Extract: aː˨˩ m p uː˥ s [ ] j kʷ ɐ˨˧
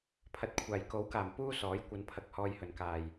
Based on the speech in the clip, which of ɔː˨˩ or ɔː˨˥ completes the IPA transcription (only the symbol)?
ɔː˨˥